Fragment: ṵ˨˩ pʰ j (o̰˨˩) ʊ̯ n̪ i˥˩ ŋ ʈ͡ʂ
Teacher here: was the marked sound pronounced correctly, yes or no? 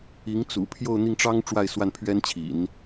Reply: no